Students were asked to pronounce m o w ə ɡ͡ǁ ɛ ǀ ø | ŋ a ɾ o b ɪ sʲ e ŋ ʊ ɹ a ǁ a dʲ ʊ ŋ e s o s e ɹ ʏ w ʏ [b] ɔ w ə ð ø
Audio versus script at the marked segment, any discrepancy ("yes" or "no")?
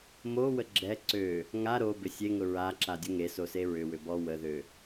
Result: no